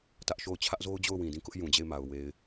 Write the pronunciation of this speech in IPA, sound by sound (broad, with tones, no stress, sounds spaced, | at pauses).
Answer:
t ä˦ ʔ ʃ o˦˨ ʊ̯ t͡ɕʰ ä˦ ʔ z o˦ ʊ̯ d͡ʑ o˦˨ ʊ̯ w ĩ˨ d ĩ˦˨ k ʊ˦ ʔ j ũ˨ d͡ʑ e˦˨ ɪ̯ m a˨ ʊ̯ w e˨ ɪ̯